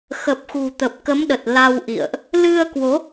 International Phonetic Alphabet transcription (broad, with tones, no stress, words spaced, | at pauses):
xə˨˩p̚xṳ˨˩t̪ə˨˩p̚kə˨˦m ɗə˨˩t̚la˧w ʔḭ˧˨ə̯ʔ | lɨ˧ə̯kwo˨˦